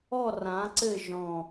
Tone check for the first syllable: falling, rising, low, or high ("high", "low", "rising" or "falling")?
falling